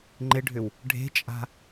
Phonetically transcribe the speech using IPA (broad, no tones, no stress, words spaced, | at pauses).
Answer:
ŋ͡ǃɪɖʱʏw | ɖʱe̤t͡ʃʼa̤